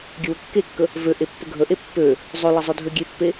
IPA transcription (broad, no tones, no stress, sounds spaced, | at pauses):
ɡʲ ə w ə kː e kː ə | v ø ʔ e pː ə ɡʱ ə ʔ e pː ø | zˤ ø l ə zˤ ø dʱ ø ɡʲ e pː e